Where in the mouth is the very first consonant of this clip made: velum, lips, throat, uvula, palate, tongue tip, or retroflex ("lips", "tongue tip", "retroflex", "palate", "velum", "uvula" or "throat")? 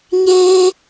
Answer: palate